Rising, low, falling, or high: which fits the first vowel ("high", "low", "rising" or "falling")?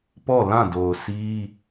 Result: falling